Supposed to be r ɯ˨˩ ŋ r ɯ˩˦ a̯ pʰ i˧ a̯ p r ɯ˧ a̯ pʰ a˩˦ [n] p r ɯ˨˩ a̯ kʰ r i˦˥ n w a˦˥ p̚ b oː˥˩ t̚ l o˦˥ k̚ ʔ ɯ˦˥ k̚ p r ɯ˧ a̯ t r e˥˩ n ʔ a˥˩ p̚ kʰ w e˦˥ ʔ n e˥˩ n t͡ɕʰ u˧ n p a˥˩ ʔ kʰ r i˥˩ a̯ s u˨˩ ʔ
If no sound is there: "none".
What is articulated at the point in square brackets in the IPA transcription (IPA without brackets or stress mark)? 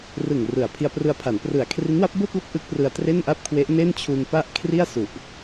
n